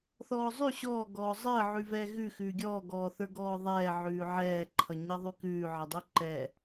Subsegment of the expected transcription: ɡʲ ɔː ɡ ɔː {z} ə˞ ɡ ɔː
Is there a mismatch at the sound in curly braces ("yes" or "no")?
yes